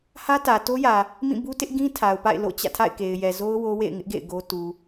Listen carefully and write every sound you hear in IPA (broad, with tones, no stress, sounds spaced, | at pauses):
h ä˦ t ä˨ t o˦ j ä˨ | m ĩ˦˨ b u˦ t ɪ˦ ʔ ɡ ĩ˦ tʰ a˨ ʊ̯ p a̰˦˨ ɪ̯ l o̰˦˨ t͡ɕ ä̰˦˨ tʰ a̰˦˨ ɪ̯ k e˨ ɪ̯ j ɛ˨ z o˦ ʊ̯ w o˦ w ḛ˦˨ ɪ̯ ŋ ɪ˦ ʔ ɡ ḛ˦˨ ɪ̯ ɡ o˦ t u˨